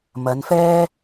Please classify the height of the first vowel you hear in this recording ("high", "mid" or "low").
low